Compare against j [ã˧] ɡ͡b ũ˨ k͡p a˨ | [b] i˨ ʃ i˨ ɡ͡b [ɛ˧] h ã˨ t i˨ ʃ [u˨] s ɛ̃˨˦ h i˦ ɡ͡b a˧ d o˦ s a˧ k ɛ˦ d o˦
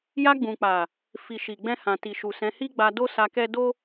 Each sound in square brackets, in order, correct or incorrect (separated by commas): incorrect, incorrect, incorrect, correct